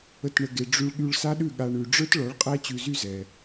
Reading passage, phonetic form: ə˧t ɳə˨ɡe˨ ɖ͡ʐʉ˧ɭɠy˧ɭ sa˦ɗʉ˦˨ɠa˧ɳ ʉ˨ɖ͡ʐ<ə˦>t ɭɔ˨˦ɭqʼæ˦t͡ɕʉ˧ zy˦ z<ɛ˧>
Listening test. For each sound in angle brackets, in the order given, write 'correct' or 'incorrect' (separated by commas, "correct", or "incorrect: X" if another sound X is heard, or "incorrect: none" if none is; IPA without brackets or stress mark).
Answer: incorrect: ə˞˦, correct